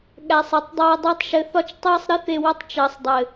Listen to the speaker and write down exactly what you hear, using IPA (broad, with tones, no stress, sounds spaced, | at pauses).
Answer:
ɠ æ˨ sˤ ɘ˨ tˤ dˤ əː˧ dˤ æ˧ tˤ ʃ ɘ˨ θ ɒ˧ t͡ʃ tˤ əː˦ sˤ ɾ ɘ˦ θ e˧ w ə˧ tˤ t͡ʃ əː˨ sˤ dˤ ɘ˨